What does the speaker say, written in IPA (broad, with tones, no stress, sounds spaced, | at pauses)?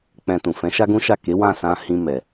k͡p ɛ̃˧ t ũ˨ f ɛ̃˨˦ ʃ a˦ ɡ ũ˦ ʃ a˦˨ k e˨˦ w ã˦˨ s ã˧ h ĩ˧ m ɛ˨